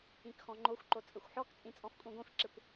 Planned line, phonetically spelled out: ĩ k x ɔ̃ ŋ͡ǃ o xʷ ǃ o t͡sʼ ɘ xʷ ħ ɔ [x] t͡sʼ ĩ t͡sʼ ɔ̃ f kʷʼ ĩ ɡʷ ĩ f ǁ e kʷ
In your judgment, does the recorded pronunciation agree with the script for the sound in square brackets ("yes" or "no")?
no